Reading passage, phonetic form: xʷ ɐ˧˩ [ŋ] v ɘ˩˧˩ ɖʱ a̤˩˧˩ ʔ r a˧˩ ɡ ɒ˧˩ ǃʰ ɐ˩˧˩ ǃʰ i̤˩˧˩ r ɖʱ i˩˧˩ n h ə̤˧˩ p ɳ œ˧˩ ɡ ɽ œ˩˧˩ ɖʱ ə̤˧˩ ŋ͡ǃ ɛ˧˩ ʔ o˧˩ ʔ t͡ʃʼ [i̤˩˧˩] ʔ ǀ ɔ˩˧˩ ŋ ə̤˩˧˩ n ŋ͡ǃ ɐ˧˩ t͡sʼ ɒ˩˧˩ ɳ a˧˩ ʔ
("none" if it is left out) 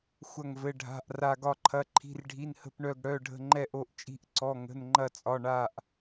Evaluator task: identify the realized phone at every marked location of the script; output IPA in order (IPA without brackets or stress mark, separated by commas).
ŋ, i̤˧˩